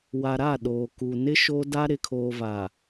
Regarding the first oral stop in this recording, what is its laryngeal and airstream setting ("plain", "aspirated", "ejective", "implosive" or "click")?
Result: implosive